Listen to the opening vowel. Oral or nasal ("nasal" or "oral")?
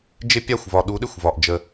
oral